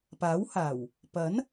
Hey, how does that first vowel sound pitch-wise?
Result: rising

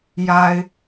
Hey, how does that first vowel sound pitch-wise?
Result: low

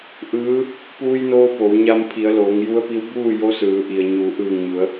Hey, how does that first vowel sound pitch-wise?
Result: rising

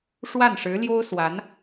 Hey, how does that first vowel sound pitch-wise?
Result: falling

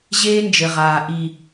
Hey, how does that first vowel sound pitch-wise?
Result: high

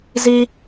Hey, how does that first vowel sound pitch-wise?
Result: high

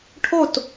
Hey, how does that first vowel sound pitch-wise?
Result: falling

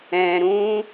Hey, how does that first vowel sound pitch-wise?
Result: low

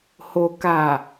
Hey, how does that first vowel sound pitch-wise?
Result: low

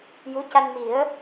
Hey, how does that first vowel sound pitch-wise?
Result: rising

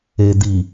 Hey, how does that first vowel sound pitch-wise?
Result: low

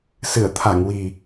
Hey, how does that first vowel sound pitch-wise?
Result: low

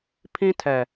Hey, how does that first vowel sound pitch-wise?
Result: high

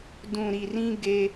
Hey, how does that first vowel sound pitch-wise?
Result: low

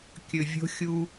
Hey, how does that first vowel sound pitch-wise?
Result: low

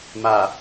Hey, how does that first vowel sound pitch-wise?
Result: low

